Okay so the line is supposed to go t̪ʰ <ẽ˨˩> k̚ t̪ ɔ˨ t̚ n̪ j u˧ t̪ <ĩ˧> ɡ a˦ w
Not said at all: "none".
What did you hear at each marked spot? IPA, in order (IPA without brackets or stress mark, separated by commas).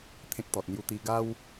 ẽ˦, i˧